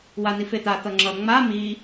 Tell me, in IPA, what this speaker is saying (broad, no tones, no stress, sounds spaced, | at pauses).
w a n i f e t̪ a t̪ ʌ ŋ͡ǁ ʌ ŋ͡m a m i